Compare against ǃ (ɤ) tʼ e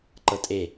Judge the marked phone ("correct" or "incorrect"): correct